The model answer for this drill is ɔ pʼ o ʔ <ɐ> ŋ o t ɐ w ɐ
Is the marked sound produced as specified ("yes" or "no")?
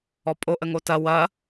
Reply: no